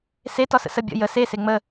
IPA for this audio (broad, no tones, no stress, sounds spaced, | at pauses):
s e t ɒ s ə̰ s ə bʲ ə̰ j ə s e s e ŋ͡m ə